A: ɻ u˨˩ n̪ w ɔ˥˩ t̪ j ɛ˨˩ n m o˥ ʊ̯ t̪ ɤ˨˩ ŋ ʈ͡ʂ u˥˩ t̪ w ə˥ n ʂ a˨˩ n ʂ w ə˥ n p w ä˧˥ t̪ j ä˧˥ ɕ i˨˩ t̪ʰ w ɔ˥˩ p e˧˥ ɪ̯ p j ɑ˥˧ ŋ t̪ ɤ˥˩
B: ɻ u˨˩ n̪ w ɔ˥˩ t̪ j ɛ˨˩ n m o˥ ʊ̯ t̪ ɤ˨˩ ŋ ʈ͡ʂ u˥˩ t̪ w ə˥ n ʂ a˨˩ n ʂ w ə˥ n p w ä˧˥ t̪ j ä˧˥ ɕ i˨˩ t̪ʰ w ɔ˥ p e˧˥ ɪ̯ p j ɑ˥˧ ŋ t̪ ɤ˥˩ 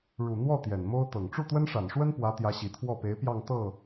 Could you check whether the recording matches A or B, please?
A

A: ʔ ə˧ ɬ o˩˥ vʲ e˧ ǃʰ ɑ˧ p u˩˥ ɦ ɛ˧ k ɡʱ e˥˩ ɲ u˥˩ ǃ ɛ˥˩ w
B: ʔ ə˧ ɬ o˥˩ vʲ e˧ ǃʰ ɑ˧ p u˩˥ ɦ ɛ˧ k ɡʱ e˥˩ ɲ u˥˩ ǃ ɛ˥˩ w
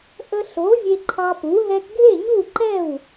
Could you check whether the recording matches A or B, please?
A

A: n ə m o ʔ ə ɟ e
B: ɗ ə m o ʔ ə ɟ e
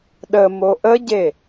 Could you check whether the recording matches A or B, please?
B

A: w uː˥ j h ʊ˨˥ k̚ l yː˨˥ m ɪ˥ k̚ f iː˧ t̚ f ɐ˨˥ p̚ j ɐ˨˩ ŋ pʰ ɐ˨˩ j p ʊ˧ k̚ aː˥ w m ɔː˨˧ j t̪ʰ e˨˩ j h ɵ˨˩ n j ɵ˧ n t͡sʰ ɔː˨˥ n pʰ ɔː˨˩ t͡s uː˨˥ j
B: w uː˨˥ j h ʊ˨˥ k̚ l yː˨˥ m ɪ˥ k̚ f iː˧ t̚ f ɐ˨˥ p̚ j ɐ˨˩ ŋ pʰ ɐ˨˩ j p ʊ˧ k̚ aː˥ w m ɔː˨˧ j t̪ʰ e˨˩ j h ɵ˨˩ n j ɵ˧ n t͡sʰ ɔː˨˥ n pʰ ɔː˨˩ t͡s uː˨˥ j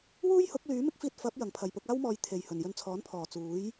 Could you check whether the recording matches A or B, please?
A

